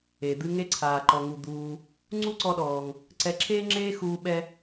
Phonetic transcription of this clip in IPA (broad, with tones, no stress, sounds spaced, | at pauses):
e˩ d̪ ɨ˧ ŋ e˧ ǀʰ aː˩ ǃ ɔ˩ ŋ u˩ d̪ uː˩ | ŋ͡ǀ u˥ ǀ ɔ˧ ɗ ɔː˩ ŋ | ǀ ɛ˧ ǁʰ eː˥ ŋ͡ǁ eː˥ x uː˧ ɓ ɛ˧